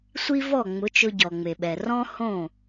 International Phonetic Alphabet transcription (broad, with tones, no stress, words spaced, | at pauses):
sʷi˥ vɔ˥˩ŋ͡mʊ˩˥t͡ʃʊ˧ ɟɔ˩ŋ͡me˩ɓɛ˩ rɔ̃˥hõ˥˩